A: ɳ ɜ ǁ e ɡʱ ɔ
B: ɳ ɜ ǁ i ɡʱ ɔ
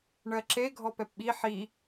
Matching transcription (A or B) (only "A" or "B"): A